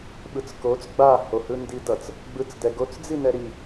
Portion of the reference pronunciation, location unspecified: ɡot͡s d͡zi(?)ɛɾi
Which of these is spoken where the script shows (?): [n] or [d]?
n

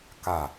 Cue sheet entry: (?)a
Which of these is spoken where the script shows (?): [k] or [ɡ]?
k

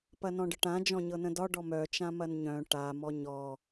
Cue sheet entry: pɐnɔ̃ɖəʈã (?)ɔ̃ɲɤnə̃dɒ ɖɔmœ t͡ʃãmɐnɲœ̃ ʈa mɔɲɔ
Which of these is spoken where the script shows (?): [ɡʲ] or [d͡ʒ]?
d͡ʒ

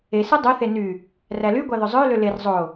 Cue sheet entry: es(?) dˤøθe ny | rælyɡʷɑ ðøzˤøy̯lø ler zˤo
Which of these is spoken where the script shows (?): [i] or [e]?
e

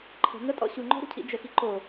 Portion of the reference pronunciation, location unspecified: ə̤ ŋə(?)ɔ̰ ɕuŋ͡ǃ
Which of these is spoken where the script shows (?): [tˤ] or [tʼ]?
tʼ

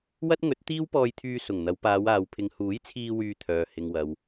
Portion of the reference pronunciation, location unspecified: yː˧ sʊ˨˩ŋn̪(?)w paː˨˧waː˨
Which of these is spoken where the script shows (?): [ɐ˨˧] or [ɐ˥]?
ɐ˨˧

